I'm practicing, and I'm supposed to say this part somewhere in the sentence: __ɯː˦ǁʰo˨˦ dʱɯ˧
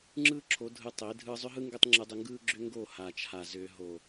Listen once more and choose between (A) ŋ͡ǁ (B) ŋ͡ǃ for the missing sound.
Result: A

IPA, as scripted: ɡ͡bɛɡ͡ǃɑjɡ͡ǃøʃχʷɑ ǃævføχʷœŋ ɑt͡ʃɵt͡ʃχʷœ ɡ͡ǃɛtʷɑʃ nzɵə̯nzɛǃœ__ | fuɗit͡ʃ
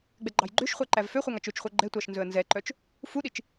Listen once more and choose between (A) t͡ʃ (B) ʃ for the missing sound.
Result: A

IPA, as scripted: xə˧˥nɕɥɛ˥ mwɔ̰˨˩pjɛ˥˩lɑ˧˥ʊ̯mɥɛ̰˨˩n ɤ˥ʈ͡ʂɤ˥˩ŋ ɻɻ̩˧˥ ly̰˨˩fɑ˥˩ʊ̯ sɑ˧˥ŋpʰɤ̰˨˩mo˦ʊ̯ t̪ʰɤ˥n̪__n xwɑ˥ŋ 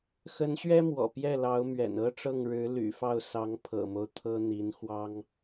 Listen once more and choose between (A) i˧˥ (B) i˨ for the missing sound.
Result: A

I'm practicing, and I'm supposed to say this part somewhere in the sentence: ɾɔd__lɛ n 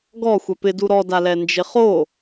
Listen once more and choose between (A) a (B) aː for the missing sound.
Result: A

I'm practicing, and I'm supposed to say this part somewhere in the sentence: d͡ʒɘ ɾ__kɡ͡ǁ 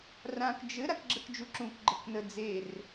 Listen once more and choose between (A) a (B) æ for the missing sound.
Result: A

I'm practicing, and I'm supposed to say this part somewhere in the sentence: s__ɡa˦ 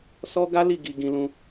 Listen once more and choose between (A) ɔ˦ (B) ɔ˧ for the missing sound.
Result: A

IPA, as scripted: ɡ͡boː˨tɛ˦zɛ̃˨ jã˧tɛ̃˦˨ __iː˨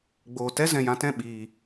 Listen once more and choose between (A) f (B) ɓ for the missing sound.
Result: B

